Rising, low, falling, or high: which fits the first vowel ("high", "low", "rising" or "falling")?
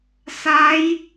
rising